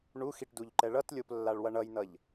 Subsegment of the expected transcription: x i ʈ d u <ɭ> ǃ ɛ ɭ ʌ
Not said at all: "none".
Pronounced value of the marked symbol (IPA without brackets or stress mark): ʎ